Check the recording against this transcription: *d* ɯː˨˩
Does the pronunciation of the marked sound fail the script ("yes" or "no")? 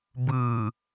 yes